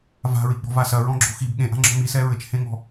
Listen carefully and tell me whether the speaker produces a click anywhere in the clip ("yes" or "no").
yes